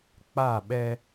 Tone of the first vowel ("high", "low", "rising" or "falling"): falling